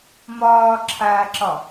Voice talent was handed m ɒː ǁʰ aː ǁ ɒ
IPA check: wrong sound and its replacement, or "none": none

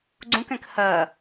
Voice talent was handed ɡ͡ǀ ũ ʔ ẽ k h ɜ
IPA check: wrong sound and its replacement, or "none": ʔ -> k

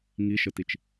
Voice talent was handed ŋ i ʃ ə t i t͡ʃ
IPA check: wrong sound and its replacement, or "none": none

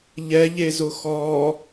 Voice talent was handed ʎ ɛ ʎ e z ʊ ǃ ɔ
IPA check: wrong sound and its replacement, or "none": ǃ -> x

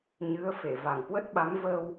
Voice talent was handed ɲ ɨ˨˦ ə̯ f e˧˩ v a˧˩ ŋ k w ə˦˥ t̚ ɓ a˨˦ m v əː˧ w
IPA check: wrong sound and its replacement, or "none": none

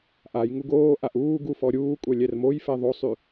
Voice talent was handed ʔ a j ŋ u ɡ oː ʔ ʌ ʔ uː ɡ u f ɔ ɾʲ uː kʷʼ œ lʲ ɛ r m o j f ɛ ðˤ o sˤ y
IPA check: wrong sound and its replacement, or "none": ʌ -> a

